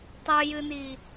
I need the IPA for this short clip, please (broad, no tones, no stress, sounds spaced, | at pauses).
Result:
tˤ ɨ j ɨ n̪ i